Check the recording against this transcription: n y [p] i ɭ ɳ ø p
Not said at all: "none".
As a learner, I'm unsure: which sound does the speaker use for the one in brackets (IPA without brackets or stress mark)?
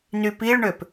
p